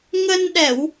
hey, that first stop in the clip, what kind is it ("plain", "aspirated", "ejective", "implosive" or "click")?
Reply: implosive